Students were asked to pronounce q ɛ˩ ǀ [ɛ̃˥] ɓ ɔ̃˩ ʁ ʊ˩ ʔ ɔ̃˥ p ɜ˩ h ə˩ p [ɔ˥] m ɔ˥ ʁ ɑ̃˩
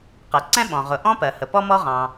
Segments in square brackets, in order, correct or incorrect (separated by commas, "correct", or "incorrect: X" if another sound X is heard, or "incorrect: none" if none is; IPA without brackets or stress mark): correct, correct